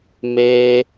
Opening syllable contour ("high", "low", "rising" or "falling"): high